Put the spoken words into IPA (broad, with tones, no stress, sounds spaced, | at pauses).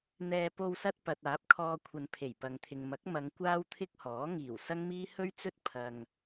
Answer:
n̪ ɛː˧ p o˧ w s ɐ˧ t̚ p ɐ˨ t̚ aː˨˥ p̚ kʰ ɔː˧ kʷʰ ɐ˨˧ n pʰ e˨˩ j p ɐ˨ ŋ t̪ʰ ɪ˨ ŋ m ɐ˨˥ k̚ m ɐ˨˧ ŋ kʷ aː˥ w t̪ʰ ɪ˥ k̚ h ɔː˨˥ ŋ iː˨˩ w s ɐ˥ ŋ m iː˥ h ɵ˥ ɥ t͡s ɵ˥ t̚ pʰ ɐ˧ ŋ